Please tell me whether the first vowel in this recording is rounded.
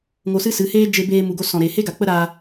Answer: yes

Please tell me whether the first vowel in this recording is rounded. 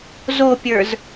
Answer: yes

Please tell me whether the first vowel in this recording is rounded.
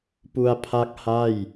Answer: yes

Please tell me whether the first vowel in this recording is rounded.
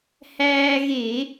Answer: no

